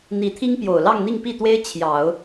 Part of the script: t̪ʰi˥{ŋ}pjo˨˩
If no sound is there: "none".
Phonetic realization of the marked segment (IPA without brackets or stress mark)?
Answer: ŋ